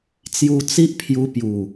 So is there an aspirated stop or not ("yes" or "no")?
yes